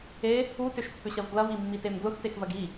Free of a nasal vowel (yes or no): yes